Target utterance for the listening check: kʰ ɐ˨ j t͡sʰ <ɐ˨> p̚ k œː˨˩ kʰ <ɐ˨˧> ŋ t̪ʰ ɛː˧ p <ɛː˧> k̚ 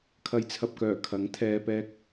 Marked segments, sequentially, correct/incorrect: correct, incorrect: ɐ˨˥, correct

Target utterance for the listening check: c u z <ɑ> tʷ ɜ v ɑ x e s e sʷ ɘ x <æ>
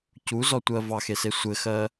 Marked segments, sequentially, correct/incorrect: incorrect: ɔ, incorrect: ɜ

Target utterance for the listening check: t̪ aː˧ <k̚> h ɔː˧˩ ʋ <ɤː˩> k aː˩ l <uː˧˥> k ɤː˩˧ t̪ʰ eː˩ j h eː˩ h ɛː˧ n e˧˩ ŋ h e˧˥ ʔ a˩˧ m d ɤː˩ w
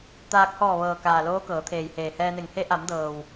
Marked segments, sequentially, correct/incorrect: correct, correct, incorrect: oː˧˥

